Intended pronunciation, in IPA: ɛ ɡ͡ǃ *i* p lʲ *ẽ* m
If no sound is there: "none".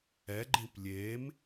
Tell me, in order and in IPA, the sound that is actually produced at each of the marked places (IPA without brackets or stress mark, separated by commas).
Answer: ĩ, e